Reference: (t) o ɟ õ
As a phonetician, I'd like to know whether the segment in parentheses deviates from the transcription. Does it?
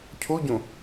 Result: yes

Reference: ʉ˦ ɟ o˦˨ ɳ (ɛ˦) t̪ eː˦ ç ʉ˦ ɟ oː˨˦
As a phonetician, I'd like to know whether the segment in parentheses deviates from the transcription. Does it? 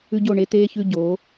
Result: yes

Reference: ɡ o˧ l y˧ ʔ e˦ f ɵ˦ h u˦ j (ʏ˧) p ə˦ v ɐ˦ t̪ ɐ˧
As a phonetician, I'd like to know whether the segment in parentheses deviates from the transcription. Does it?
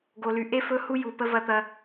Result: yes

